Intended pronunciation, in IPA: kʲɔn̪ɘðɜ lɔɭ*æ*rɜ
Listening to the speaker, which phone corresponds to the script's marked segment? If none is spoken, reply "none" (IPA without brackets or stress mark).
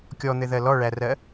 æ